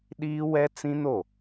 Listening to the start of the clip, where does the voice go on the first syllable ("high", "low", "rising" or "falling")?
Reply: high